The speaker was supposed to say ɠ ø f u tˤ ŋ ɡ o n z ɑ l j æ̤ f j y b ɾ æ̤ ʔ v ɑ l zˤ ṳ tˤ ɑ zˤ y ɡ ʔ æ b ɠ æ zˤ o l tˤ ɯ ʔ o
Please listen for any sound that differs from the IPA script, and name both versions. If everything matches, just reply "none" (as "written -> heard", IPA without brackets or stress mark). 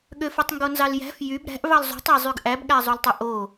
none